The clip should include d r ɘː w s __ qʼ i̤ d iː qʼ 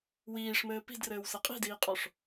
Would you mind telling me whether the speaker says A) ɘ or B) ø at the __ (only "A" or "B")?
A